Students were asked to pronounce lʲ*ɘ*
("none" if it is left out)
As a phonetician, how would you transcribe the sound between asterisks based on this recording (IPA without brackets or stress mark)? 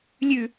ʉ